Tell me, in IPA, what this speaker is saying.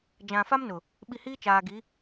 d͡ʒã˨fa˦m nʊ˨ | ɓi˨ hiː˦t͡ʃaː˨ɡi˨˦

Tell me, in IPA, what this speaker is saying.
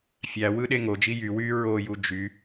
fʲæwɯ ɗeŋod͡ʒi jy wy ɹoju d͡ʒy

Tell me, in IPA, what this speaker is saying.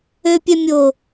øpʲɛmʲo

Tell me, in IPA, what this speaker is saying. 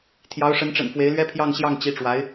t̪ʰjɑ˧˥ʊ̯ʂə˧˥nʈ͡ʂə̰˨˩n fwe˧˥ɪ̯lɥɛ˥ pʰjɑ˥˧ŋɕjɑ˥˩ŋ t͡ɕi˧˥ʈ͡ʂwa˧˥ɪ̯

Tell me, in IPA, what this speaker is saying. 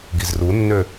ɡizrunːø

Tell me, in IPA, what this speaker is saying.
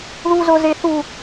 ðuzozeθu

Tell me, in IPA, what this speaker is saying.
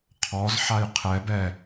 qʰɔz ħajqʰɛb ɛ

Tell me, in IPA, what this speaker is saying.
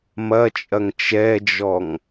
mɐt͡ʃʼɐŋ t͡ʃɛd͡ʒɔŋ

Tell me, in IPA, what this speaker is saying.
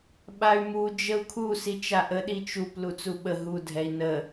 ɓay̯mu d͡ʒəu̯kʰu sit͡ʃaʔə ɗit͡ʃup lut͡suɓə ɦu dʱɛi̯nə

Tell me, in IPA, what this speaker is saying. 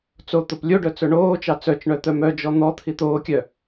t͡so t̪oplʲoɖœ t͡sɵɳoːt͡ʃɑ t͡sœt͡ʃɳœ t̪œmœd͡ʒɔ n̪ɔ t̪ʰit̪oːkʲœ

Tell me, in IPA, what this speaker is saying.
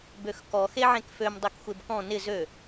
bøxkɔ xeʕẽkføm dˤekxʷebkɔ̃ nɪ zø

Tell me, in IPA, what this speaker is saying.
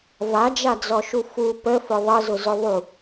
vad͡ʒad͡zɔʃu fu pəfʊ ðˤəzʊzʊ ðˤu

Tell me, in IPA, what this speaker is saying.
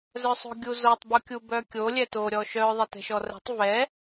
zœsˤo̤ɡʲuzotˤ bukʲubœkʲo lʲɛto ɾʲɔʃœ ðˤɛtɛ̤ʃɔrɛ̤tˤ vɛ

